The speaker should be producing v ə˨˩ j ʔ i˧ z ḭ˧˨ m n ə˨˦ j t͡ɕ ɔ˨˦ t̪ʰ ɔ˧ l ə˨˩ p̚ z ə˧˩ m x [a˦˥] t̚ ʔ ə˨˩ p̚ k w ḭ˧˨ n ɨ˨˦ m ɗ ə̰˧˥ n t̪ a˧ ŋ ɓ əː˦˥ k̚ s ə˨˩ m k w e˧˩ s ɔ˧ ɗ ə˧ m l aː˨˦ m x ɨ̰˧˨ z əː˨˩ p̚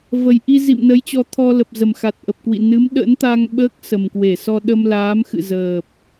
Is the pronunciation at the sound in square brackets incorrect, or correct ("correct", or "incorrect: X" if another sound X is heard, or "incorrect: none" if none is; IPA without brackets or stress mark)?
incorrect: a˨˩